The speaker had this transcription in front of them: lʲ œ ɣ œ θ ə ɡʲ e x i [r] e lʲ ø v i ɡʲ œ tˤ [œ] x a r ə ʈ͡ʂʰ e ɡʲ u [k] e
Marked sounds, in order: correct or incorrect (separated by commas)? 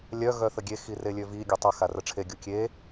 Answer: correct, incorrect, incorrect